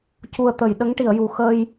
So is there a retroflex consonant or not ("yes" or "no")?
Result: yes